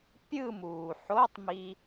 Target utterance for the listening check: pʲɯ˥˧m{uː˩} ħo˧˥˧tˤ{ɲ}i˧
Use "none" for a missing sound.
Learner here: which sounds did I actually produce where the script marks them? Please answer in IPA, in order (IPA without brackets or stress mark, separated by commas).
uː˩, m